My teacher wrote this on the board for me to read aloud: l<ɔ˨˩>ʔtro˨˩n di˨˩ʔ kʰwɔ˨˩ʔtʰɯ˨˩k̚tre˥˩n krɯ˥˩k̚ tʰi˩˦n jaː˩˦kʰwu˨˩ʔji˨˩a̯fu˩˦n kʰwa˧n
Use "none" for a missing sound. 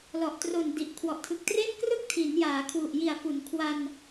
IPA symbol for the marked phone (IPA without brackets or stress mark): ɔ˨˩